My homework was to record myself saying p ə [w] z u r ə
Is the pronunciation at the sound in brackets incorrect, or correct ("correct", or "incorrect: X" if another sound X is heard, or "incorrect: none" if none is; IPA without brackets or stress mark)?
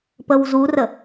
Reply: correct